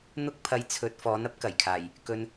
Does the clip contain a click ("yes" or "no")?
no